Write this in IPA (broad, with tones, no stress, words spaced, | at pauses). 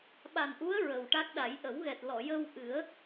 ɓa˨˩nʔu˧˥ə̯ ɹə˨˩w ʈa˦˥k̚ɗa˨˩˦j ʔə˨˩˦wɣɛ˨˩t̚lɔ˨˩˨ jə˧wʔɨ˨˩˦ə̯